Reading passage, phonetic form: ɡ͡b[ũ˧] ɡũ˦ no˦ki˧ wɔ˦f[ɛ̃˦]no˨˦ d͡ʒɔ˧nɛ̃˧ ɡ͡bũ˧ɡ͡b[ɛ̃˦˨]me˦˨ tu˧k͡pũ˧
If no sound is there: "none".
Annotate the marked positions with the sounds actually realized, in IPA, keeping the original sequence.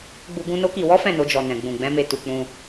u˧, ɛ̃˦˨, ɛ̃˦

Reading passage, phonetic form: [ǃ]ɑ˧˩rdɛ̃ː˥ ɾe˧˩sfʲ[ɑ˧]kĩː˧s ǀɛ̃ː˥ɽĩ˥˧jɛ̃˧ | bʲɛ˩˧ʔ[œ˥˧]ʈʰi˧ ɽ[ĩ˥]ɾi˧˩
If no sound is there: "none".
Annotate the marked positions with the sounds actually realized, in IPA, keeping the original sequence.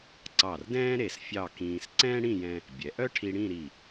ǀ, ɑ˥˧, œ˥, ĩ˥˧

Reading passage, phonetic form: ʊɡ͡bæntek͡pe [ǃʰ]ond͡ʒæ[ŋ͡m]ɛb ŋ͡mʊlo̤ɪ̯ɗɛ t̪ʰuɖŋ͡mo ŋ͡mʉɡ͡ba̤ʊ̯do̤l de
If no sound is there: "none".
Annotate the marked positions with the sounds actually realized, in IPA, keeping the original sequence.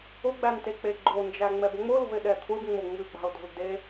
ɡ͡ǃ, ŋ͡m

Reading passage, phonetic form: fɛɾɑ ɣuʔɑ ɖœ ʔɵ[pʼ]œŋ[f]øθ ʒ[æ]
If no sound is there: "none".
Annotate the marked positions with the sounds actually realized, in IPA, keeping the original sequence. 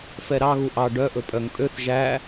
pʼ, pʼ, æ

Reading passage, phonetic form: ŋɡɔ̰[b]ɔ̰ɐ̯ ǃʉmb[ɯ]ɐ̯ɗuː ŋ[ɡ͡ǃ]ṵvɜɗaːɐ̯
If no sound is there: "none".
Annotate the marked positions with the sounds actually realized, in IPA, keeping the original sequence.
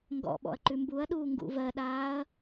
ɓ, u, ɡ

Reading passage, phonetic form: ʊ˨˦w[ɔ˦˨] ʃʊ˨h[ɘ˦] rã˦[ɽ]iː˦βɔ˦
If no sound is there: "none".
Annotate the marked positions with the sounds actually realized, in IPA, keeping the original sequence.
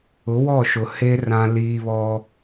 ɔ˦˨, e˦, l

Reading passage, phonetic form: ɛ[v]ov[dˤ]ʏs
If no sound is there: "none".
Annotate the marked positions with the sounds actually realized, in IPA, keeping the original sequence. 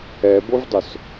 b, dˤ

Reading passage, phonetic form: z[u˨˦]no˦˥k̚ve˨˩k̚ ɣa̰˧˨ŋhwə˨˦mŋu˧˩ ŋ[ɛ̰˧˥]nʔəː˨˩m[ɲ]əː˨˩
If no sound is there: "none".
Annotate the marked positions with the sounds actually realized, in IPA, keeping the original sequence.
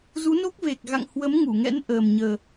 u˨˦, ɛ̰˧˥, ɲ

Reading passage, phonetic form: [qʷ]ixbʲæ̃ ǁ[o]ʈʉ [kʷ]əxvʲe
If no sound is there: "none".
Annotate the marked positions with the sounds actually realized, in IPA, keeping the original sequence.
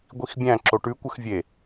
ɡʷ, o, kʷ

